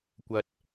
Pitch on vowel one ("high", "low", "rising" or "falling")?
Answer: low